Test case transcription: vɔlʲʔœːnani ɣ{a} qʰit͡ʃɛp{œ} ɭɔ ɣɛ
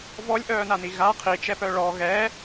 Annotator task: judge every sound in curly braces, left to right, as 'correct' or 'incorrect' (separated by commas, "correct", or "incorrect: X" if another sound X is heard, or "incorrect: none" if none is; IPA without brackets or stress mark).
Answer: correct, correct